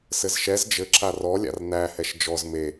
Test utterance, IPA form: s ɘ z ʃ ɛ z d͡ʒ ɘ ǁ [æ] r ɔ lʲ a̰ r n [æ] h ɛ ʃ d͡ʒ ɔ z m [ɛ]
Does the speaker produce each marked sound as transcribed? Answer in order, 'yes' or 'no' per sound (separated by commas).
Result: no, yes, no